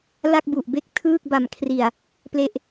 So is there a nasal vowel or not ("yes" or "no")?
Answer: no